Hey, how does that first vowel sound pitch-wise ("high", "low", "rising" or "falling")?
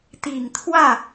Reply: low